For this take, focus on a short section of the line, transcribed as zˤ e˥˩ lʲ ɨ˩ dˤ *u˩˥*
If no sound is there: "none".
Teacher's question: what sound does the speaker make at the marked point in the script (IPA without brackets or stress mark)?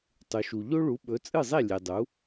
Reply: u˩˥